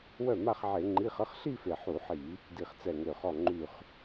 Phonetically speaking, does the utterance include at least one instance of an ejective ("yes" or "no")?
no